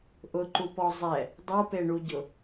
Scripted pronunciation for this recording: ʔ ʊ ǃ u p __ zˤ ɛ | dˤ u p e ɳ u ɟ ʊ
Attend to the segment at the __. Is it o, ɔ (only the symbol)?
ɔ